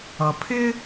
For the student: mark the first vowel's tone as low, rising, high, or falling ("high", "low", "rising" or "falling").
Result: low